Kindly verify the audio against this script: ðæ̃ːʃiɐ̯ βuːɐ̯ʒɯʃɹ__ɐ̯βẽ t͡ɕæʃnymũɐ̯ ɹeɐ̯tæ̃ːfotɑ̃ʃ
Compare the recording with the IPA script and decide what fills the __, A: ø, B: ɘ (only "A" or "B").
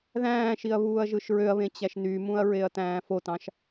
A